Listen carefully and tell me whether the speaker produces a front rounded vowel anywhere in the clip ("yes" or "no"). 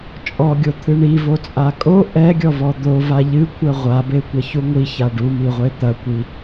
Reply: no